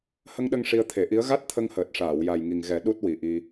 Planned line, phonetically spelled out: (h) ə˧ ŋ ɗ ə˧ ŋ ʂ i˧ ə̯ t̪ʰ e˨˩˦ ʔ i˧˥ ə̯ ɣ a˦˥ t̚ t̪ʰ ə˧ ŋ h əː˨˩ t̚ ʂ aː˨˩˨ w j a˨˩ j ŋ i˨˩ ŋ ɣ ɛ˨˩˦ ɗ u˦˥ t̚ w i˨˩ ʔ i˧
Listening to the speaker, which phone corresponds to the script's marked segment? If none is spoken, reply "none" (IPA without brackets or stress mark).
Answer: h